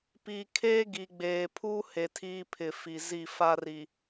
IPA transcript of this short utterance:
pi˨ kʰe˦ɡi˨ɡ͡beː˨pʰu˦ he˨tʰiː˦pʰɪ˨ fi˨ zi˦˨ fa˦ri˨

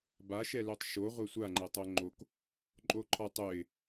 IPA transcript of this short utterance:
baʃɛløtˤ ʃo ʁʷɛsʷaŋ͡ǃɤ tˤoŋ͡ǃok | ǃʼoǃʰɒtˤøɪ̯

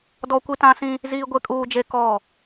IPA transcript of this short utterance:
dɔ˦kʷi˦tã˦sĩ˦ | ziː˦ɡʷe˦ kʼuː˦d͡ʒe˦kɔ˦˨

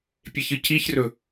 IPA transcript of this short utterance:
pʲeçɨciçrɵ

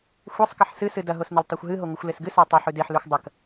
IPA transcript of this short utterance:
xʷesˤkɐħ sɨsɨ dɐɦos nɵltˤaxʷɦɨɦo ŋʷɨxʷlesɡɨsa tˤɵħʉ deħlʉxʷ dˤɐk

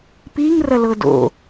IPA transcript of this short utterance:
piŋ rɐlɤdo̰

